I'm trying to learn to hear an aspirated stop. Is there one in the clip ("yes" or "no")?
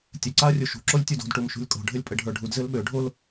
no